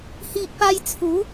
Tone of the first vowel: low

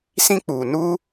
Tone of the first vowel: high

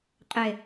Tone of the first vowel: low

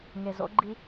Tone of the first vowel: low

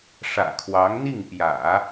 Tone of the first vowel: low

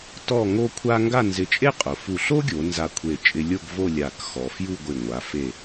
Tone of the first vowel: falling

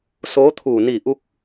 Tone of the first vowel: rising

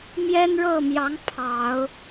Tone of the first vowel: high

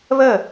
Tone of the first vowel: falling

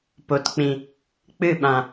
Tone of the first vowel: low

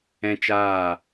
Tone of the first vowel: high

